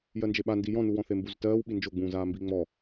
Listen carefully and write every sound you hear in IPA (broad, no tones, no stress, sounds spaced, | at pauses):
j ɜ n d͡ʒ e ɓ a n d i j ɔ̃ n u w ɔ̃ θ e m b u z t ɜː w ɓ i n d͡ʒ o ɡ͡b ũː z aː m b i ŋ͡m ɔ